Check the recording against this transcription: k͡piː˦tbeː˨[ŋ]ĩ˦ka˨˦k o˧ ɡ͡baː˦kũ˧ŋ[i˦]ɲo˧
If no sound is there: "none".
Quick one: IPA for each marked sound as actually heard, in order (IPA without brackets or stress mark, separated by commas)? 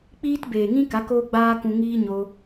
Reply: ŋ, iː˦